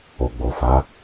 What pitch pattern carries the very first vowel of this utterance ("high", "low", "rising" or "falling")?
low